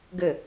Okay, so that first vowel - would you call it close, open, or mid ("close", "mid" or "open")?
mid